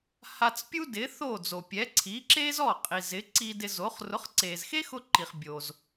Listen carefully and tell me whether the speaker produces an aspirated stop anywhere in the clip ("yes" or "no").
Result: yes